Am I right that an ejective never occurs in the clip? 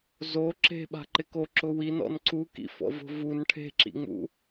yes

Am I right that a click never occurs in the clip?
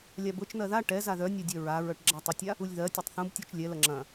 no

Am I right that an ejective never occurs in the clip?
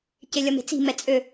no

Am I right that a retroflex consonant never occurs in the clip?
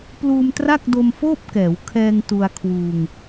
yes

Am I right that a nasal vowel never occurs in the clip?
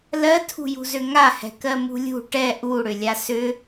yes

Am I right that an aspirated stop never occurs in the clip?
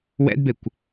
yes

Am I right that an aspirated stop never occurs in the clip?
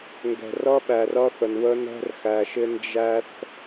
yes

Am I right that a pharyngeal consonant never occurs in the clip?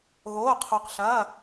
yes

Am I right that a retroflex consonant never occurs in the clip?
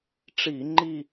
no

